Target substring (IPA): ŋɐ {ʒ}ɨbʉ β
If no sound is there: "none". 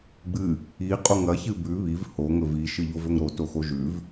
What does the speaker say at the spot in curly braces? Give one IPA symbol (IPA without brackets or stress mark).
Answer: ç